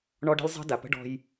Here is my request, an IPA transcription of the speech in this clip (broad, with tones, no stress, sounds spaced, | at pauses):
ɳ ɔ˦ ɖ ə̤˦ lʲ zˤ ə̤˦ d a˨ p ə̤˦ ɖ ɔ̤˦ j